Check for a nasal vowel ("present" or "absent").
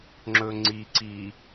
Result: absent